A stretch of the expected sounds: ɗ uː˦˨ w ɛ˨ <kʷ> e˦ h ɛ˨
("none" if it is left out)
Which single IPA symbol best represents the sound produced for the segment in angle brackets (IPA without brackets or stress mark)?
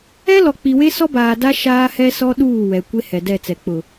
kʷ